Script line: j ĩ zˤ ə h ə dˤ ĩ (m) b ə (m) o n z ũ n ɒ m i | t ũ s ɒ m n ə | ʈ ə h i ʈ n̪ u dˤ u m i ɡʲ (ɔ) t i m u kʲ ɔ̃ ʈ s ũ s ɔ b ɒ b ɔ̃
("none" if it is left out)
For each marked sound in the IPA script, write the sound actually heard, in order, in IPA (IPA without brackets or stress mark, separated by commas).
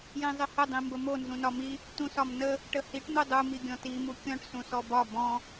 m, m, ɔ̃